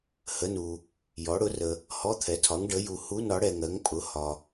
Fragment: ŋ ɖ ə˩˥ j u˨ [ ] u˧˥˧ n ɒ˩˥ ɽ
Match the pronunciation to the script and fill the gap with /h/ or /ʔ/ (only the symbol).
h